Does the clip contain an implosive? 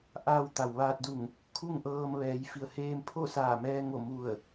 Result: no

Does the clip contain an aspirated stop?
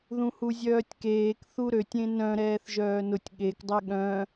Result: no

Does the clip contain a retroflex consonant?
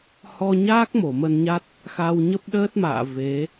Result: no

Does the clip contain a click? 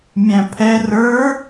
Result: no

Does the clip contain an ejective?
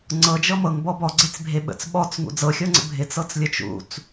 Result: no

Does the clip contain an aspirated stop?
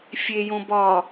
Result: no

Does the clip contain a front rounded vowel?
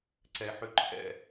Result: yes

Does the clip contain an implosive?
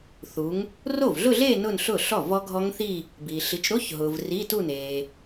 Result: no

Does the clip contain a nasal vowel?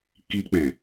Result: yes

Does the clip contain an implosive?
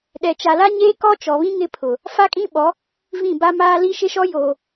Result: yes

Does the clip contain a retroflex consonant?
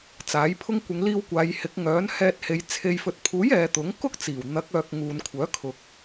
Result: no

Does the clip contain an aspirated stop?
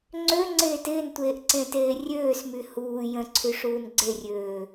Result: yes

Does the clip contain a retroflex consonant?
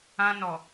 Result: no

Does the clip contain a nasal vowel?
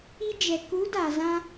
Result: yes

